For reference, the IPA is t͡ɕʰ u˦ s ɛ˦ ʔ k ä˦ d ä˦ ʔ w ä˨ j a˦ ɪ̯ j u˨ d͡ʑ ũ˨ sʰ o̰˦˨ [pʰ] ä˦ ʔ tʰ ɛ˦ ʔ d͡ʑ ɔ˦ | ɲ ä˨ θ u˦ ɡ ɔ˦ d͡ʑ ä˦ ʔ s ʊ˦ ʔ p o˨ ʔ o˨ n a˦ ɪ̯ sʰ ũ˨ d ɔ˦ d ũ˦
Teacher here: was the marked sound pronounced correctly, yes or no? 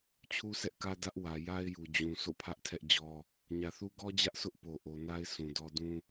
yes